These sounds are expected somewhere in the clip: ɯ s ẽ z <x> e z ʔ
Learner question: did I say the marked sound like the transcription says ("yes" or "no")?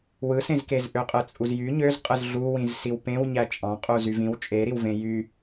no